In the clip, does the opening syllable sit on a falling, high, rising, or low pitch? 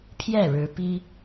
falling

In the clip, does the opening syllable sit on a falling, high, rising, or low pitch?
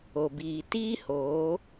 low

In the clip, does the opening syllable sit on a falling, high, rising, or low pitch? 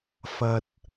low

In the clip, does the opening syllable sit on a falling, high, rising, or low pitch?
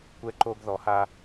high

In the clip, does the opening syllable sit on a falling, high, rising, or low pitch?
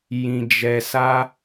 low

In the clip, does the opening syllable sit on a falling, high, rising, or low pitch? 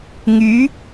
rising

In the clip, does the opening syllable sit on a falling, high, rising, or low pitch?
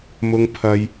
high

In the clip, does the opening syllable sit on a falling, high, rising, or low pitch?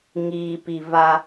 low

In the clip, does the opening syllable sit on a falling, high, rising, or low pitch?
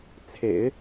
low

